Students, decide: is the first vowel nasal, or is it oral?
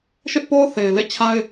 oral